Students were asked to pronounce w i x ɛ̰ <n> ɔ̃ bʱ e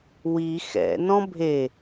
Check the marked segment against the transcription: correct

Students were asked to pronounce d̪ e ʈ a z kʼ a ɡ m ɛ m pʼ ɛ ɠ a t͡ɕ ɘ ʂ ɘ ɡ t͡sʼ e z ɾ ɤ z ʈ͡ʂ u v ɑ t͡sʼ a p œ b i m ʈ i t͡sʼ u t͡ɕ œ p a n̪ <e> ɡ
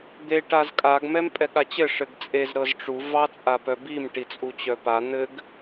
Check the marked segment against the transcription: incorrect: ɘ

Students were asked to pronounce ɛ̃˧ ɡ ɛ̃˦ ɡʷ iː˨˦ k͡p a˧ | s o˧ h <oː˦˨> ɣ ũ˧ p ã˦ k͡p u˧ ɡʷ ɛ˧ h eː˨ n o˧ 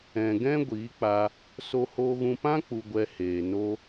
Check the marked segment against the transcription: incorrect: oː˧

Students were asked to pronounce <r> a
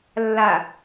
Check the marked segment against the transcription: incorrect: lː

